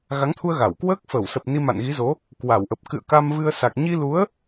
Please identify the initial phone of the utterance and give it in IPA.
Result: ɣ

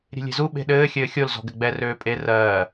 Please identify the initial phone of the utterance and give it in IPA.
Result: ɾʲ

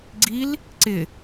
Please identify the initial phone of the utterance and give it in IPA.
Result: ɡ͡ǀ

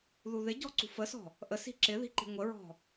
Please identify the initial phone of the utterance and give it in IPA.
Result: ð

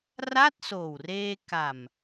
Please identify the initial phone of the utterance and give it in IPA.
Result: r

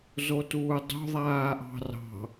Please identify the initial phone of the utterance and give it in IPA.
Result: z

